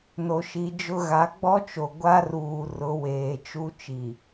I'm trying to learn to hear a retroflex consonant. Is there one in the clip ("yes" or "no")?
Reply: no